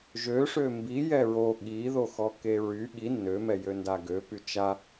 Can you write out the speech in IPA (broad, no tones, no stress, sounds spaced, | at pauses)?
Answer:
ʒ ø ʂ ø m b i j ɛ ɹ o ɠ i ð o x ɔ k e ɹ y ɠ i nː ø m ɛ j ø n d a ɡ ø p y t͡ʃ a